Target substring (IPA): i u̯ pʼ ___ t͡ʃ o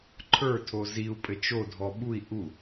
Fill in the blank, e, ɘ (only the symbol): ɘ